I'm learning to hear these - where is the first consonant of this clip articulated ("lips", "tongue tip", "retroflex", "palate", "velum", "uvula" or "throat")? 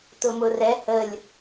tongue tip